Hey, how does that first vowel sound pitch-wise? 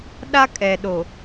high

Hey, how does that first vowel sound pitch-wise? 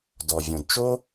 low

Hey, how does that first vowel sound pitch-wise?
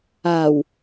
low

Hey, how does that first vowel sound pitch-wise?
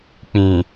low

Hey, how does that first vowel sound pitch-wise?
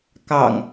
low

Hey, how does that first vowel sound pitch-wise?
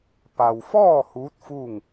low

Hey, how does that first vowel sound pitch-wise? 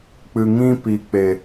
low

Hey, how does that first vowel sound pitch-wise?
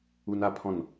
high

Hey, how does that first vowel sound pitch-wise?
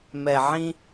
low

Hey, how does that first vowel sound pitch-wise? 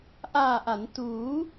low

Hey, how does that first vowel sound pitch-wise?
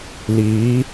rising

